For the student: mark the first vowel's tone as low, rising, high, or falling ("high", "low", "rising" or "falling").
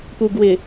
low